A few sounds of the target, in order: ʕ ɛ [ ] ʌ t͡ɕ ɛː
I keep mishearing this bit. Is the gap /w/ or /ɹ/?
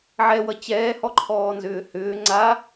w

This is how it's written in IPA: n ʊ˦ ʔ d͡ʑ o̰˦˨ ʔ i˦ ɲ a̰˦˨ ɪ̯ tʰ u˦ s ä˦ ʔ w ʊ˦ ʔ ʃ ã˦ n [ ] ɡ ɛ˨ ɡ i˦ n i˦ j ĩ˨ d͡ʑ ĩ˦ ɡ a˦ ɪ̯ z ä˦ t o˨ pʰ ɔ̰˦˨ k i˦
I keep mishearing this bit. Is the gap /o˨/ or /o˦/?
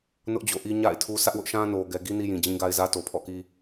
o˨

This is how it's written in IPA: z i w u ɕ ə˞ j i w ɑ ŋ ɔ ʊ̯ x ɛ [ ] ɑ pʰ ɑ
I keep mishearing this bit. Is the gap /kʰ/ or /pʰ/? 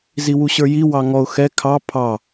kʰ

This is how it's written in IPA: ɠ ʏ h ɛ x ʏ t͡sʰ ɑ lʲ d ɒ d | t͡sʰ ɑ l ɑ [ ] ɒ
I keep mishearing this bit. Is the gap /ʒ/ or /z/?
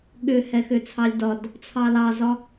z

